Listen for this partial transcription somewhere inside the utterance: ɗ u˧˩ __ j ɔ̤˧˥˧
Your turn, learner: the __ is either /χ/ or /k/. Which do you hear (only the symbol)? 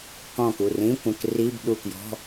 k